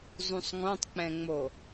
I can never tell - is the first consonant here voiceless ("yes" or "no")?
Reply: no